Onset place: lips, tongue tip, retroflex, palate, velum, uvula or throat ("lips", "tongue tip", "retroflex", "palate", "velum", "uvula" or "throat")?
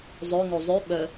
tongue tip